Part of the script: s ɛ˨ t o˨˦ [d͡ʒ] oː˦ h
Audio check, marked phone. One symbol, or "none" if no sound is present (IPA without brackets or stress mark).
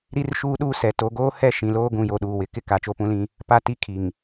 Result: ɡ